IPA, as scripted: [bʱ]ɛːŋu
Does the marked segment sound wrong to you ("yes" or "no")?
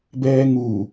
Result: yes